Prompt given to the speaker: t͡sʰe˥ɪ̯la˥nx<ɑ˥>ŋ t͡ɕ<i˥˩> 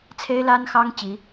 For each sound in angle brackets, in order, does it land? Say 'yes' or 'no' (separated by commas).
yes, no